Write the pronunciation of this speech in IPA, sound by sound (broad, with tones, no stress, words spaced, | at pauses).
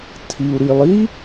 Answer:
tʰi˩u̯ɾi˩lˠ i˦˥